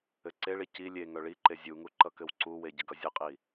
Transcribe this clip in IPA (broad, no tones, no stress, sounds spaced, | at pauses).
ɘ ǀ e ɭ i c i lʲ e ŋ œ ɭ i ǃ e zʲ u ŋ u ǃ ʌ k ɘ w ǀ u w e ɟ ə ɡ ʌ zʲ ə qʼ i